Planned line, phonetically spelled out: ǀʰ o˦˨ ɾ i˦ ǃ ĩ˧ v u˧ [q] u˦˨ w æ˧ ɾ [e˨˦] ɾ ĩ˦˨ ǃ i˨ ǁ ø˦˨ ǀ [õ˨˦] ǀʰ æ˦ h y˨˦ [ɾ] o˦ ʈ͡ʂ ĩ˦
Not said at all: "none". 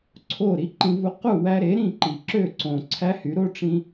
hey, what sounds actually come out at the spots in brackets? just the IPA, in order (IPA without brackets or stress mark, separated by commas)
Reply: q, e˨˦, õ˨, ɾ